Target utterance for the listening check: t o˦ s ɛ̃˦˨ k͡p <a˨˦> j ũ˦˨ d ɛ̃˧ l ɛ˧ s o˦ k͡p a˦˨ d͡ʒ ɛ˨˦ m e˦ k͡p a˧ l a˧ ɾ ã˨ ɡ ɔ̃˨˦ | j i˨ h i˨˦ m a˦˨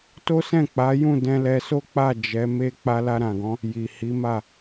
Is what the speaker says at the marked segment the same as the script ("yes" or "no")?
yes